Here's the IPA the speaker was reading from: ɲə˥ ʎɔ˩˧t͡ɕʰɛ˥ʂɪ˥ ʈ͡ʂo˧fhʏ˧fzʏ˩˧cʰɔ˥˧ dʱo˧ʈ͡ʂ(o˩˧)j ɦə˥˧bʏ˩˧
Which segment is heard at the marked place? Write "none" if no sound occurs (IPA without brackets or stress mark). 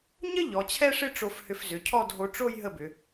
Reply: o˥˧